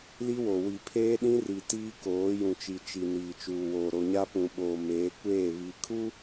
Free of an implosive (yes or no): no